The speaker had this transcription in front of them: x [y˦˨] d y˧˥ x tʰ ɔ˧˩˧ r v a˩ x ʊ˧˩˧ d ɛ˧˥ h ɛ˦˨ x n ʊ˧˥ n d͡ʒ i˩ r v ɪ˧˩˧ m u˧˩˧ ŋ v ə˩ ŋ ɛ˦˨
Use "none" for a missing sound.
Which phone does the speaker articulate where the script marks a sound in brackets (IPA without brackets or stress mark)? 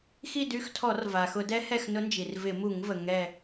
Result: i˦˨